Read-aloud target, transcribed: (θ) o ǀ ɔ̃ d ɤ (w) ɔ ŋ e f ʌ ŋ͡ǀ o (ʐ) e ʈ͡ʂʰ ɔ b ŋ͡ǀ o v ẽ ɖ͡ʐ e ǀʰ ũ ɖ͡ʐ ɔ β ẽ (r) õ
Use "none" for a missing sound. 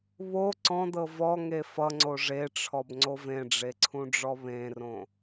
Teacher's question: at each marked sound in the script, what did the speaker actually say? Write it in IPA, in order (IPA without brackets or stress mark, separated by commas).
β, v, ʐ, r